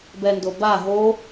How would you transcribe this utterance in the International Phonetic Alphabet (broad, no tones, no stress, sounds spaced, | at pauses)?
b ɛ n d o b a ɦ o